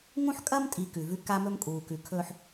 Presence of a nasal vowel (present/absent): present